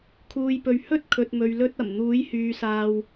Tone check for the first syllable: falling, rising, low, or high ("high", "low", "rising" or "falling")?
low